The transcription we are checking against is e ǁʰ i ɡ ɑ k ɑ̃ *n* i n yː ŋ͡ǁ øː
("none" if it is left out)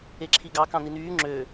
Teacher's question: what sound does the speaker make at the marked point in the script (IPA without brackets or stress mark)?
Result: n